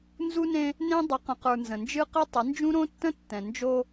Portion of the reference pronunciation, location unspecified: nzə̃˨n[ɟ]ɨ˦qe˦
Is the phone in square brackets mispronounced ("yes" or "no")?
yes